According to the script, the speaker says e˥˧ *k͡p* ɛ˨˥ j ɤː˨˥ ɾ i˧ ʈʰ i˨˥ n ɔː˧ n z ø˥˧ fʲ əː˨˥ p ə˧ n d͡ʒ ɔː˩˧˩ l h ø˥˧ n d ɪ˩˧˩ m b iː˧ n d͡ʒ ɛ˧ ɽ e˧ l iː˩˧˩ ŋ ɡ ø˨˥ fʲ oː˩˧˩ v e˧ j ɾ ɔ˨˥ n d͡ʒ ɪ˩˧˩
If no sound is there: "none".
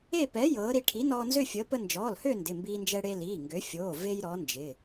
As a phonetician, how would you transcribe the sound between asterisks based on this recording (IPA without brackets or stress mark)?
p